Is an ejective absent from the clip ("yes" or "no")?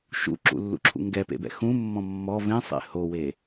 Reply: yes